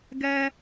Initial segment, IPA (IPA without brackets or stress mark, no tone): ɡ